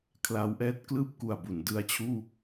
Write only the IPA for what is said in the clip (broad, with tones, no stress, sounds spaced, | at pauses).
kʰ l a˦˥ w ʔ ɛː˦˥ t̚ k l ɯː˥˩ p̚ k u˨˩ a̯ b u˩˦ n d ɯ˧ a̯ t͡ɕʰ uː˥˩